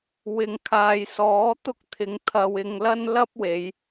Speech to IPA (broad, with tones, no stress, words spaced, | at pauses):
wɪ˨ŋ kʰaː˨jsɔː˨˥t̪ʊ˥k̚ t̪ʰɪ˨˧ŋt̪ʰɐ˧w ɪ˧ŋ lɐ˥n lɐ˥p̚we˨˧j